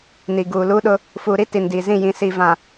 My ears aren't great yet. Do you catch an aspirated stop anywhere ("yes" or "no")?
no